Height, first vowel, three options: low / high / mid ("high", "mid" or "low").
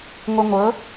mid